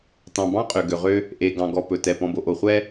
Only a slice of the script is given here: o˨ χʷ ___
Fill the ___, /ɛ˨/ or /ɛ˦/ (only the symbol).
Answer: ɛ˦